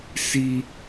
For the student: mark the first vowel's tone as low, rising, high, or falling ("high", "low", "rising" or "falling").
high